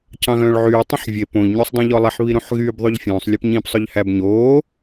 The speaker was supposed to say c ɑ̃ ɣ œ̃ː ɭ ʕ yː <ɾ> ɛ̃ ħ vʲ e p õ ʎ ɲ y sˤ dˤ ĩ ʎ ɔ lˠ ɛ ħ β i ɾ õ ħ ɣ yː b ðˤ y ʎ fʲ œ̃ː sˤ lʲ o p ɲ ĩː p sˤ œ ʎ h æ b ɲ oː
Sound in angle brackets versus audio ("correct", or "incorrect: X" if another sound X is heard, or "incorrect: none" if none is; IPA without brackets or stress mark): incorrect: tˤ